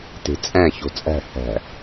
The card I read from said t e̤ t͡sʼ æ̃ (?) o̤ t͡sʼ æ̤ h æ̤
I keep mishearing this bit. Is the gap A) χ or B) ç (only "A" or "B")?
B